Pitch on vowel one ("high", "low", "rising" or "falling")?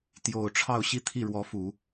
low